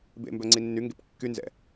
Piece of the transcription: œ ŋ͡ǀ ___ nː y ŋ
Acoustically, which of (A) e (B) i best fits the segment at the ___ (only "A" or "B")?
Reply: B